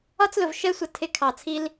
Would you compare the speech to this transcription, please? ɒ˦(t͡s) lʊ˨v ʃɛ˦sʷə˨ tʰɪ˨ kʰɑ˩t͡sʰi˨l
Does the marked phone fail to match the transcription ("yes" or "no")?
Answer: no